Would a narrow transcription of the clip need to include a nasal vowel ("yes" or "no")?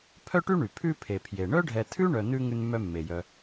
no